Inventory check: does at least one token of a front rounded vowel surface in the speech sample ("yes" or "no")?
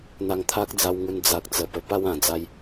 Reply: no